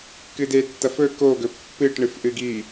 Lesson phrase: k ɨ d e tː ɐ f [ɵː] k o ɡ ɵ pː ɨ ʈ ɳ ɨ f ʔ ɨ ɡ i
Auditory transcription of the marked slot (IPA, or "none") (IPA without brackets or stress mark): ɵ